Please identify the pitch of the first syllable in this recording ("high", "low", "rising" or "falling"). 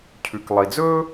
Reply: low